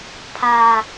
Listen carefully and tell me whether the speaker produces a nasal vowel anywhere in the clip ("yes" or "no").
no